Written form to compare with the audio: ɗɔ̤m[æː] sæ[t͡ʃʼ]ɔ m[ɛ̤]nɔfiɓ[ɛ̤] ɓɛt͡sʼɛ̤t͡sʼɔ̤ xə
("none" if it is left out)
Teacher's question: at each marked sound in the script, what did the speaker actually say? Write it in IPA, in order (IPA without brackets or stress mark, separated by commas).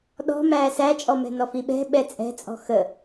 æː, t͡ʃʼ, ɛ̤, ɛ̤